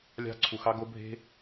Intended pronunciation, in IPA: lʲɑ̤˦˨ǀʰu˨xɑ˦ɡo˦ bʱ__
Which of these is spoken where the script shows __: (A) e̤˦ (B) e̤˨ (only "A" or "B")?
A